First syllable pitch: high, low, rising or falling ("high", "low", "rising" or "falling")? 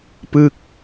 falling